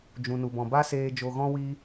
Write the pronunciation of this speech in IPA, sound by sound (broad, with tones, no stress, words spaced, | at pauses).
d͡ʒũ˧nu˧bɔ̃˧ ba˦ seː˧ d͡ʒo˧ ɣɔ̃˦wiː˦